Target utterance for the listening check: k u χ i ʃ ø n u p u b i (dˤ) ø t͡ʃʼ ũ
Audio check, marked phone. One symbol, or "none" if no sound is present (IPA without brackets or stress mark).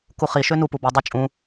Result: dˤ